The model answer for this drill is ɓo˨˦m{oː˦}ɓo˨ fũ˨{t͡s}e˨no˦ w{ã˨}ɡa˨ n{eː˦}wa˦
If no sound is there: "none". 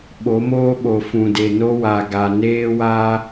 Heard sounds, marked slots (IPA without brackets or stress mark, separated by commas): oː˦, d, a˨, eː˦